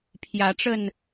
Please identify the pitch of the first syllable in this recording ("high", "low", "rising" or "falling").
rising